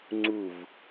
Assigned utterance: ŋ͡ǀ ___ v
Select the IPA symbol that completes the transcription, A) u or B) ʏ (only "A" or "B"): A